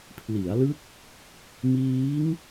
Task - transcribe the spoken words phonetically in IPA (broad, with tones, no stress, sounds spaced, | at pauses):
pʰ l i˩˦ a̯ l ɯ˦˥ k̚ | m iː˦˥ ŋ